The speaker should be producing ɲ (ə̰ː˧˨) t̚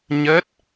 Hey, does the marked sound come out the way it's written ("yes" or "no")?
no